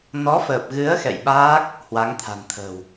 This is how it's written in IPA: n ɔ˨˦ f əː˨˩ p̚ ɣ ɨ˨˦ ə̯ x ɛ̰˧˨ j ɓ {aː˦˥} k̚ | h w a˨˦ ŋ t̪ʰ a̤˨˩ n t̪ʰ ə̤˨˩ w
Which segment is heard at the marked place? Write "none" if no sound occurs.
aː˦˥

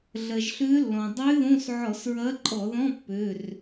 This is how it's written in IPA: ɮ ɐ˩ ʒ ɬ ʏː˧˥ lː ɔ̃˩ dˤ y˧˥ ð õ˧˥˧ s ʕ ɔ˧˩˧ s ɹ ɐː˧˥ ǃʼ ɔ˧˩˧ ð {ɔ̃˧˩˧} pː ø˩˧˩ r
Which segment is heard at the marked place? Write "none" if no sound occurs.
ɔ̃˧˥˧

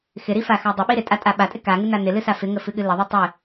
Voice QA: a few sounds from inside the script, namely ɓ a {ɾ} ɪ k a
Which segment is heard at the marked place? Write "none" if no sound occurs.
tʼ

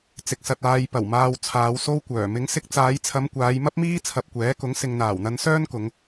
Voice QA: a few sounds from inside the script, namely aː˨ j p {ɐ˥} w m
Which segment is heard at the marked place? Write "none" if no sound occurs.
ɐ˨˩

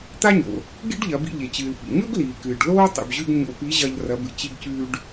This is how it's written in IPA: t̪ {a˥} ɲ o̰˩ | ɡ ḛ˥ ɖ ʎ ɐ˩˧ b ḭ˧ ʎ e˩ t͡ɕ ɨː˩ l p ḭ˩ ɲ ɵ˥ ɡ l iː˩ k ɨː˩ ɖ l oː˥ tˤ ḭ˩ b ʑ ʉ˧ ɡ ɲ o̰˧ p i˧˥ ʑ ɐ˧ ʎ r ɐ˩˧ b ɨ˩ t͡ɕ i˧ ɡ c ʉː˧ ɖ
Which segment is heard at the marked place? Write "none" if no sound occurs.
a˥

